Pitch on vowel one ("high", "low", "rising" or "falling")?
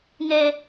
low